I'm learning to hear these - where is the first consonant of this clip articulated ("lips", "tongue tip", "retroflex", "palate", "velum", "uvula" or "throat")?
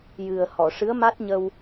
palate